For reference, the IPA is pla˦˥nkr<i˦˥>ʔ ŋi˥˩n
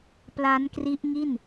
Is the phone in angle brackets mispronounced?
no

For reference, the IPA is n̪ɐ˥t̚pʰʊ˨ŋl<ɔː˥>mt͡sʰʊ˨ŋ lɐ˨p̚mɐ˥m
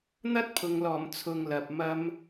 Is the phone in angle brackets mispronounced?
yes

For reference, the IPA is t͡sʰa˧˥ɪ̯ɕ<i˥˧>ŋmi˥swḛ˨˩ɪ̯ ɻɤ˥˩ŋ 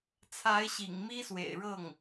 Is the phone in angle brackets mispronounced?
yes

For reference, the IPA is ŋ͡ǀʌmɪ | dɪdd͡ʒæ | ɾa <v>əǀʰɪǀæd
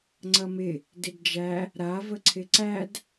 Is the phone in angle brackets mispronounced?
no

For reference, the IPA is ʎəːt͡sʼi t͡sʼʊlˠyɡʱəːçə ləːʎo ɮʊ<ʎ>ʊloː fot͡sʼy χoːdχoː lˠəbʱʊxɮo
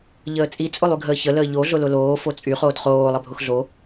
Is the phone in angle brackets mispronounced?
yes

